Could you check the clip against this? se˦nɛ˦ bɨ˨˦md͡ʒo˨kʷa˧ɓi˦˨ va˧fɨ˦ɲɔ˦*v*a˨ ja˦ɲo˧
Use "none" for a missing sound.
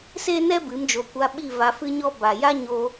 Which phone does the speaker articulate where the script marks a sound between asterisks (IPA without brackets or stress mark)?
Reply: b